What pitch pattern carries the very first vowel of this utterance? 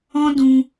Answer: high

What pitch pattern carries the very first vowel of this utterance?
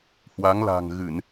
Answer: rising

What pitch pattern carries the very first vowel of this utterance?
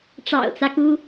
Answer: low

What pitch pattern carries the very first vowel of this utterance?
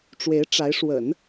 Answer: rising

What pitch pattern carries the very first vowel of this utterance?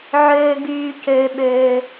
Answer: low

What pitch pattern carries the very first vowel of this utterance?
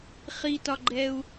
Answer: high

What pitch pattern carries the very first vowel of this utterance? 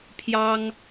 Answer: high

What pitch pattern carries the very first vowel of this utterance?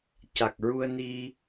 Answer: low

